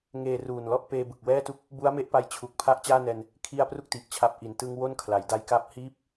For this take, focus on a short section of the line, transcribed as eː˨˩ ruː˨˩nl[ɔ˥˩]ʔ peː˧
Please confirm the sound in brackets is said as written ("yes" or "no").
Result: yes